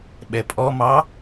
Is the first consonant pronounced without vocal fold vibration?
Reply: no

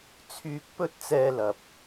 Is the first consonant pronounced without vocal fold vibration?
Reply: yes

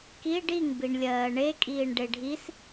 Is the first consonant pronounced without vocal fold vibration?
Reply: yes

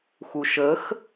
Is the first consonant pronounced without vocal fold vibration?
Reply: yes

